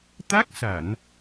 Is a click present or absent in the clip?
absent